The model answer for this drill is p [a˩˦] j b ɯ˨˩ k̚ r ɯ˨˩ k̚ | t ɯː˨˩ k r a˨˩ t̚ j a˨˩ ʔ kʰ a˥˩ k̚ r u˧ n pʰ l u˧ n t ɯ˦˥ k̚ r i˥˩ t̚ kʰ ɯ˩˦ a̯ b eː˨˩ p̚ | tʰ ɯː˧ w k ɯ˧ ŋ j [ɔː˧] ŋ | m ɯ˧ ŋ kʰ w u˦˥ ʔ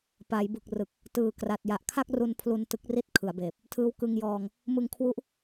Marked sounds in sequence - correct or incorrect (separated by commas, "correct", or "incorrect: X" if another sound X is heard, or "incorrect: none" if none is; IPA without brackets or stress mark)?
correct, correct